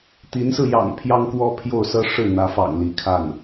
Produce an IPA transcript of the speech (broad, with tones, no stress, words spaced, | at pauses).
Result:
t̪i˧˥nsɹ̩˧ jɑ̰˨˩ŋ pʰjɑ˥ŋkwɔ˥pʰjo˥˩ʊ̯sɤ˥ ʂɻ̩˥˩n̪ä˧˥fɑ̰˨˩ŋ li˧˥kʰa˥˩n